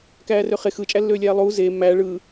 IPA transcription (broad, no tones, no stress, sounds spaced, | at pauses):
k æː r ø χ e x ɯ t͡ʃʼ æ lː øː lʲ æː lˠ uː z eː mː æː ɭ ɯː